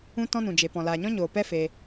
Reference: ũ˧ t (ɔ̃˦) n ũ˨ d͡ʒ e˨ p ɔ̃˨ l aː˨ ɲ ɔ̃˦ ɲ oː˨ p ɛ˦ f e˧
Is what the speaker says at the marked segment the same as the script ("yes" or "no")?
no